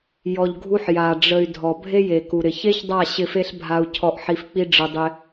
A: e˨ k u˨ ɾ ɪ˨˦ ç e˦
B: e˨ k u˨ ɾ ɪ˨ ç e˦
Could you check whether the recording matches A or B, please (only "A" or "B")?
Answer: B